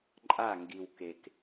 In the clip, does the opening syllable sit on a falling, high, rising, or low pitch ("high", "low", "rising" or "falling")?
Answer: falling